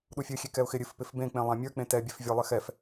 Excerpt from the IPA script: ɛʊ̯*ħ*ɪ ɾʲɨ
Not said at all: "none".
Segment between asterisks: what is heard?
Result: x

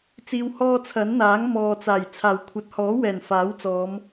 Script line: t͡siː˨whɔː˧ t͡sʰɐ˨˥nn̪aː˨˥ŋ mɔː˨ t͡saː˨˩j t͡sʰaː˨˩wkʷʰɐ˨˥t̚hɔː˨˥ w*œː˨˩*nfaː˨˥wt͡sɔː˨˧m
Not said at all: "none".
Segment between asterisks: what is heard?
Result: ɛː˨˩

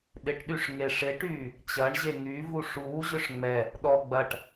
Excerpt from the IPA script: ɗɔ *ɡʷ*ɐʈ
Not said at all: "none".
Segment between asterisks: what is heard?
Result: ɡ͡b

